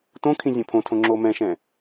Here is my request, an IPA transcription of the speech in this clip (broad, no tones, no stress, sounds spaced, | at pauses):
t õ kʰ ĩ zʲ õ pʰ õ tʰ õ ŋ͡ǁ o m ɛ̃ ʃ ɛ̃